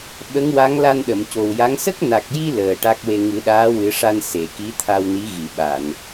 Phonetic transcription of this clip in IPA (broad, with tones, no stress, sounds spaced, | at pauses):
ɓ ə˧˥ ŋ w a˧˥ ŋ l a˧ n ɗ ə˨˩˨ m c o˨˩ w j a˧˥ ŋ s ə˦˥ k̚ n a˨˩ k̚ j i˧ l əː˨˩ ʈ a˦˥ k̚ w e˧ ŋ ɨ˨˩˦ ɗ aː˧˥ w ɨ˨˩˦ ʂ a˧ n s e˨˩˨ k i˧˥ t̪ʰ a˧ w n i˧˥ ɣ i˨˩˨ ɓ a˨˩˨ n